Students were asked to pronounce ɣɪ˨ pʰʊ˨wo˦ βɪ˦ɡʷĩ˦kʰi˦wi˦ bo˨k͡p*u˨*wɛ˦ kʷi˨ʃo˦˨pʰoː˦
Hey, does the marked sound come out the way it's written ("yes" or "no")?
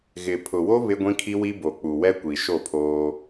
yes